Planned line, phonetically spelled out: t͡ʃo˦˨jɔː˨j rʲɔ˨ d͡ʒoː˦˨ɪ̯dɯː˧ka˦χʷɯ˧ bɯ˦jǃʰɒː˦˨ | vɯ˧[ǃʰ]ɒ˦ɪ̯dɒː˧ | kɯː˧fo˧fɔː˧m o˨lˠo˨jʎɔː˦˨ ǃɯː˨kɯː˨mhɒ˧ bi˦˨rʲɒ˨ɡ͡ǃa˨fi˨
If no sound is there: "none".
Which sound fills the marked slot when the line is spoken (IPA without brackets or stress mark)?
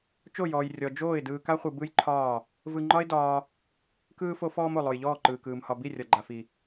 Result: ŋ͡ǃ